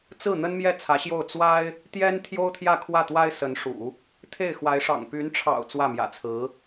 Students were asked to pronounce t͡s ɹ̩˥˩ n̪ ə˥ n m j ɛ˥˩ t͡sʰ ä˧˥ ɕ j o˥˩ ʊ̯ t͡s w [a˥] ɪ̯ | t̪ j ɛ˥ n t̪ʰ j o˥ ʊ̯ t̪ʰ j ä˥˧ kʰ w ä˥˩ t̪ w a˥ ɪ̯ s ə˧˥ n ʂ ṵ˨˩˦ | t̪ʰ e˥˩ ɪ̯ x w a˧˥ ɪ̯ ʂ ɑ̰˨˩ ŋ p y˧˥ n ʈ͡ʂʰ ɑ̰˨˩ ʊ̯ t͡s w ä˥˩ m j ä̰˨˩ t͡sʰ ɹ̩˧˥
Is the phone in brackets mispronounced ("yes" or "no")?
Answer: no